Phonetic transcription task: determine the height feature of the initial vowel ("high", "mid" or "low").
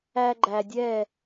low